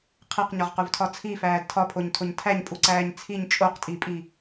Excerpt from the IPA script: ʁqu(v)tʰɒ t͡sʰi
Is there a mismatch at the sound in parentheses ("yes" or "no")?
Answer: no